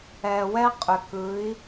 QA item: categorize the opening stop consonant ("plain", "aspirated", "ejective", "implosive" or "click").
ejective